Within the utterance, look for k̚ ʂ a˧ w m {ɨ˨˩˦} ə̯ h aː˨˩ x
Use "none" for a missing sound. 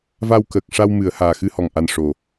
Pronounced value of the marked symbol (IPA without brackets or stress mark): ɨ˨˩˦